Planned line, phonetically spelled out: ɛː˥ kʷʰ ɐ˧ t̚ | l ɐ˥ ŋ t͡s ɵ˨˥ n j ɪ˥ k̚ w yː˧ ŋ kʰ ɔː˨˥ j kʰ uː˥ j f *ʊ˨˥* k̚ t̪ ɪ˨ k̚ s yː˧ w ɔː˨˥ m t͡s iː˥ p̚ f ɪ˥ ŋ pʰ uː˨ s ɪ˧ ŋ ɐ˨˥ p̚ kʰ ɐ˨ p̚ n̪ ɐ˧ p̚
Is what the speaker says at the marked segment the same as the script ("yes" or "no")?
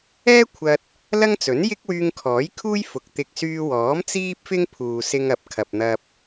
yes